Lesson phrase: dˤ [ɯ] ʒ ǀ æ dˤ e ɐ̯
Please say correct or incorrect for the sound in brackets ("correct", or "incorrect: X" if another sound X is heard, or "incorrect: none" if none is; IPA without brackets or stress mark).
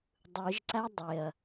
correct